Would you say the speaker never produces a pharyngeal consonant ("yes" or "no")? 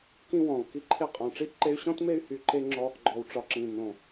yes